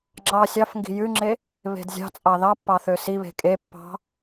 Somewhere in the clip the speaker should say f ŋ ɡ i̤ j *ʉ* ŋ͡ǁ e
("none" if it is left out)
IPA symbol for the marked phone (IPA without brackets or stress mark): ʉ